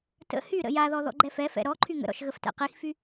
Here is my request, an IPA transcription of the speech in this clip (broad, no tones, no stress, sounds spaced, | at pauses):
t ə̰ h y ɾ ə̰ j a ð ɔ ð ɔ̰ ɡ͡ǃ ɛ f ɛ f ɛ̰ ɾ ɔ ǃʰ y ŋ ə̰ ɾ ɔ̰ ʃ ɣ ə f t ɛ̰ q i x f y